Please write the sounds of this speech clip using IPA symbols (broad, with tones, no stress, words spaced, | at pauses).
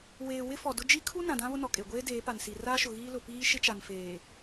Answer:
weː˨ wɪ˦fɔ˨dʊ˦ d͡ʒi˦kʰu˦ nã˨dã˦βʊ˦ nɔ˨kʼe˨ɡʷeː˦ deː˨˦pa˨nsi˨ raː˦ʃʊ˨ɣiː˦lʊ˨ piː˦ʃɪ˦t͡ʃa˨n feː˨